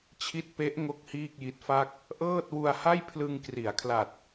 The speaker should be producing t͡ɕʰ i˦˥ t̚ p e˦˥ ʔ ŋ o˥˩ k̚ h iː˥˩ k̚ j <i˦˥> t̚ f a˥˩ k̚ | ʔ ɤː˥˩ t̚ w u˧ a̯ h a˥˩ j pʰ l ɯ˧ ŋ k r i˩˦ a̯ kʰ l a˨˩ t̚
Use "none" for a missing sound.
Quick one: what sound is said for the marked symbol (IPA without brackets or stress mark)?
i˦˥